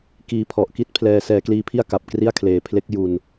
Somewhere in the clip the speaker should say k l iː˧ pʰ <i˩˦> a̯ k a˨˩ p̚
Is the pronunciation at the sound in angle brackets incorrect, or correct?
incorrect